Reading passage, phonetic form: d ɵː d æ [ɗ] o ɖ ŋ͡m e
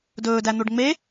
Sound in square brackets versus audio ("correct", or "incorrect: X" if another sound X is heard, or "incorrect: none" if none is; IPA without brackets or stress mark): incorrect: n̪